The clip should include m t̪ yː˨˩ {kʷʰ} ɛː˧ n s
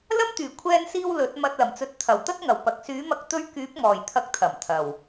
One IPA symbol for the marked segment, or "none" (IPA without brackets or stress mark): kʷʰ